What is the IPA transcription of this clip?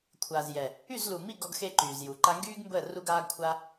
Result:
kʷʰ aː˨ z j ɛ˨ | y˦˨ z l u˨ m i˦˨ ɡ ɔ˦ ɡ x e˦ ǃ yː˨ z j u˨ ǃ a˧ ŋ ɡ yː˦ ɡ m b əː˦˨ r u˦ ɡ aː˦ ɡ kʷʰ a˦

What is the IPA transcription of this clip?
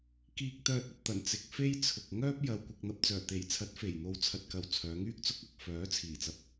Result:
k iː˧ k̚ t̪ œː˨ t̚ ɐ˧ p̚ t̪ ɐ˨˩ n t͡s ɪ˨ k̚ f e˥ j t͡sʰ ʊ˨ k̚ ŋ œː˥ p̚ j ɐ˧ w kʷ ɪ˧ k̚ n̪ ɐ˧ p̚ t͡s œː˨˩ t̪ e˨˩ j t͡sʰ ɐ˨˥ t̚ f e˨˩ j n̪ o˧ w t͡sʰ ɐ˧ t̚ k ɐ˨ w t͡sʰ œː˨˧ ŋ yː˥ k̚ t͡s ʊ˧ k̚ ɐ˨ k̚ f œː˨˥ t͡sʰ iː˨˩ t͡s ɐ˨˥ p̚

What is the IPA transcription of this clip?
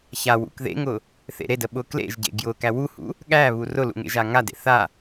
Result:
ç a w ṵ k ð ḛ ŋ ʊ | θ ḛ ɾ e d ə ɓ ʊ k l ḛ ʒ ɟ ḛ ɡ j ʊ k æ w u h ṵ | ɠ æ β u r ʊ l ṵ ŋ ḛ ʒ a ŋ a d ḛ θ a

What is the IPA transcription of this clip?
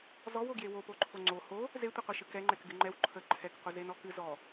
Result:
z ɔ w o ɡ j e w o p o ǃʰ o ŋ͡ǀ o h o | z e tʷ ɨ qʷ e ʃ ɨ k ɛ ŋ͡ǃ ɛ k ɡ ɨ ŋ͡ǃ ɛ w ǃʰ ə ǃʰ ɛ k qʷ ɨ z e n ɔ k ɨ z ɔ

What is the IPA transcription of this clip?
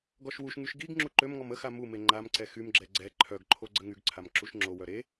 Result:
ɡ ɔ ʃ w u ʃ ŋ y ʃ ɡ i ɡ ŋ͡ǁ u ǃ ø m ŋ ɔ m ə x a m u m e ŋ͡ǃ a m ǀ ɛ x y m ɡ͡ǁ ɛ ɡ͡ǀ ɛ ǃʰ œ ɡ ǃʰ o ɡ͡ǀ ə ŋ y ɡ ǀʰ a m ǁ u ʃ ŋ͡ǁ o w œ ɾ e

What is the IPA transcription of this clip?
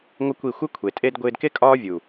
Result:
ŋʷ ɪ˦ kʷ i˦˨ xʷ ɪ˦ kʷʰ e˨ tʼ e˦ d ɡʷ ɪː˧ d k e˦ kʼ ɒː˦ vʲ u˨

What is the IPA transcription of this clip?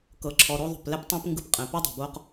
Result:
k ɤ˩ ǁʰ ɔ˩ ɾ o˧ ðˤ o̤˩ p l ɛ˥ p tˤ ɛ̃˥ p ŋ ɡ ɯ˧ p qʼ ɛ̃˩ p o˥ dˤ o̤˩ b o˧ q

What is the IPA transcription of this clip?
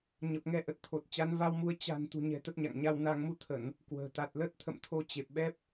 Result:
ɲ ə˨˩ p̚ ŋ ɛ˧ ʔ ə˨˩ t̚ t̪ʰ o˨˩ t̚ t͡ɕ a˨˦ n v a˧ w m u˨˦ ə̯ t͡ɕ a̤˨˩ n t̪ ṳ˨˩ ɲ ɛ̤˨˩ t̪ ə˦˥ t̚ ɲ a̰˧˨ ŋ ɲ a˧ w n a˧ ŋ m u˧ t̪ʰ ə˧˩˨ n | k w ə̤ː˨˩ t̪ a˨˩ t̚ l ə˦˥ t̚ t̪ʰ ə̰˧˨ m t̪ʰ o˧ t͡ɕ e˨˩ p̚ ɓ ɛ˦˥ p̚

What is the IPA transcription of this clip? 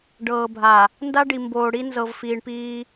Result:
ɖ ɤː˨ bʱ a˨ | n d a˦ ɖ i˨ m b oː˨ ɽ i˦ n z ɤ˨ v f iː˨ ɳ p iː˦

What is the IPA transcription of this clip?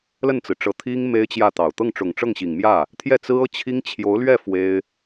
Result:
l ə˥˩ n t͡s ɹ̩˩ ʈ͡ʂ ɤ˧˥ t̪ʰ i˥ ŋ m e˥ ɪ̯ t͡ɕ j ä˥˩ t̪ ɑ˨˩ ʊ̯ t̪ ɤ˥˩ ŋ ʈ͡ʂ ʊ˨˩ ŋ ʈ͡ʂ ɤ˥˩ ŋ ɕ i˨˩ ŋ m j ä˥˩ | t̪ʰ j ɛ˥˩ t͡s ɹ̩˥ ɤ˥˩ t͡ɕʰ i˥ ŋ t͡ɕʰ j o˧˥ ʊ̯ l ɥ ɛ˥˩ f w e˥ ɪ̯

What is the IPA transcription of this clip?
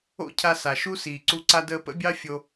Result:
o̰˦ cʰ a˧ s a˨ ʃ u˦ s iː˨ ǀ u˧ ǀ a˧ d əː˧ p ə̰˦ bʲ ɑ˦ fʲ o˧

